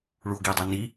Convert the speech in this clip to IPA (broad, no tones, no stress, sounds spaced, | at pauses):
ɭ u o̯ ɡ i e̯ dˤ a n i